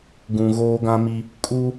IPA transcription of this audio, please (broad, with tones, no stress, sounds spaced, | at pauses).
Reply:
ɡ ũ˨ ɣ oː˦ ɡ ã˦ m i˦ | kʼ u˦